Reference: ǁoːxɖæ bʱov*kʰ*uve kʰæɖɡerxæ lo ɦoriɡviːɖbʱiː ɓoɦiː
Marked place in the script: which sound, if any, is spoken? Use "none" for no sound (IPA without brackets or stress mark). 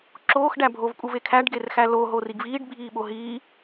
kʼ